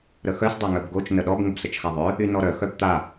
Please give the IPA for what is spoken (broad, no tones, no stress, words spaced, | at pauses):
ɾəxœs dˤaŋœbɡot͡ʃ nəɗɔb ŋʊbsət͡ʃxaðˤœ | ynɔɾœ xœbt̪a